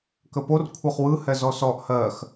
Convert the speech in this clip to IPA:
k ə p o r kʷʰ ɤ χ w ɯ h ɛ z ɔ s ɔ ʔ h ɜ x

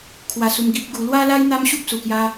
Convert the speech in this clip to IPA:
kʰ w a˧ s u˧ m ɡ i˦ p̚ ɡ u˧ l w a˦ l a˦ j n̪ a˦ m ɕ u˦ p̚ s u˨˩ k j a˧

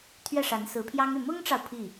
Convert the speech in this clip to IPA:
t̪ʰ ɥ ɛ˥˩ ʂ a˧˥ n s ɹ̩˧˥ pʰ j ɑ˥ ŋ y˥˩ m ʊ˥ ŋ ʈ͡ʂ ɑ˨ ʊ̯ pʰ i˥˩

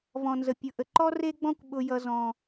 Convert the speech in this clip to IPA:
v ɔ̃˨ n z ə˨ pʲ ʊ˨ ʔ ə˨ ǃ ɔ˦ r e˦ ɡ͡b ɔ̃˦ kʷ ɓ ʊ˦ j ʌ˦ z ɔ̃˦

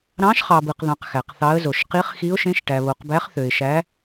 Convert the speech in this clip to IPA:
ɾ ɑ̃˧˥ ʃ χ ɑ˨ b ɯ˨ q ð ɑ̃˨ q x æ˨ q θ ɑ˧˥ ə̯ z o˨ ʃ q i˧˥ χ x i˧˥ ʊ̯ ʃ ẽ˧˥ ʃ ʈ æ˨ β o˨ q b æ˧˥ χ θ ø˨ ɪ̯ ʃ æ˧˥

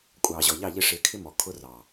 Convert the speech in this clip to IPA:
kʷʼ ɑː˨ ʑ ɔ˨ ʎ ɑ˦˨ ʎ ɪ˦˨ ʂ ɪː˧ kʰ ɪ˦ m ɔ˨ kʰ ʊ˧ r ɑ˨

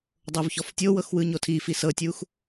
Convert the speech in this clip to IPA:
dˤ o v ç ɔ f tʲ o w ɤ x w ɯ ɲ o tʰ i f i s ɤ tʲ u x

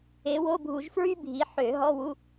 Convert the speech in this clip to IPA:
e˨˦ w o˧˥˧ bʱ u˧˩˧ ʒ f ɹ y˥ bʱ i˨˦ ħ ø˧˩˧ ɦ ɔ˧˥˧ w u˧˥˧

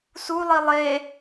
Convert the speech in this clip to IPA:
s u lˠ i lˠ e

